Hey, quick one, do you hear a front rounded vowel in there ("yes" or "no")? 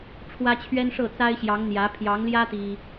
no